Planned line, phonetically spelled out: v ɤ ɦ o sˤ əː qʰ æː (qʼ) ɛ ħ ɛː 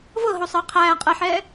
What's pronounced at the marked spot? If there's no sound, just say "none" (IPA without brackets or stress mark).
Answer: qʼ